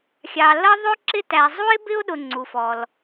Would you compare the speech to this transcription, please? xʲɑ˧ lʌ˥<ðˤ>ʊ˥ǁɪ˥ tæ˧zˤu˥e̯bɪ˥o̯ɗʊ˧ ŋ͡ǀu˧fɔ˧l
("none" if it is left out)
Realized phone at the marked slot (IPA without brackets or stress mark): ðˤ